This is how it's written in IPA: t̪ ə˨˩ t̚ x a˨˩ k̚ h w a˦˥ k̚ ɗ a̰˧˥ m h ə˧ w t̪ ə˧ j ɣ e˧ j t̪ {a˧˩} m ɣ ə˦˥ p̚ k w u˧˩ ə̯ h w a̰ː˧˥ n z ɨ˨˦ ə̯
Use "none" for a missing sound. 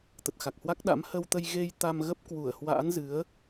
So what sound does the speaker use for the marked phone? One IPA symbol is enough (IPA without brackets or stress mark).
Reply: a˧